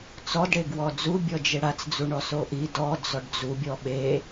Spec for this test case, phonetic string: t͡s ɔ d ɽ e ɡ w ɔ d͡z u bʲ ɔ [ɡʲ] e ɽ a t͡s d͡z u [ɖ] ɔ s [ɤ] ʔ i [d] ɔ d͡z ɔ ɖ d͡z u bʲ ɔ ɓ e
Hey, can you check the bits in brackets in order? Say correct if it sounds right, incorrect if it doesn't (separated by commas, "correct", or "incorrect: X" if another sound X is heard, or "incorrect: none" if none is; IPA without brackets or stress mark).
incorrect: d͡ʒ, incorrect: ɳ, incorrect: o, correct